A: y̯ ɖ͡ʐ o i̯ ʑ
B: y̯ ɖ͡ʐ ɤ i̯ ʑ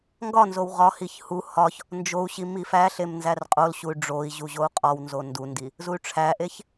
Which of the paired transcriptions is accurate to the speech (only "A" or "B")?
A